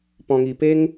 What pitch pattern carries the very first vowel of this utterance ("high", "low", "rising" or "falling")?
low